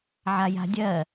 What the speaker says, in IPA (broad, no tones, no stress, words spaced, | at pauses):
ʕaja̤dʲɜ